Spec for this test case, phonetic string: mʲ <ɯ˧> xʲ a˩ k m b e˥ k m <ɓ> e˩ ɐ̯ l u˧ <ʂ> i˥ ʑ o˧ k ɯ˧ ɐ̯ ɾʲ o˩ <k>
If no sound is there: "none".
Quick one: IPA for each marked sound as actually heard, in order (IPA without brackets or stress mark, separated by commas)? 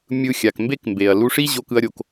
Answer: ɯ˧, b, ʂ, k